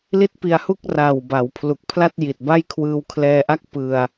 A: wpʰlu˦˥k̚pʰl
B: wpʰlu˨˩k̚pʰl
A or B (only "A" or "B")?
B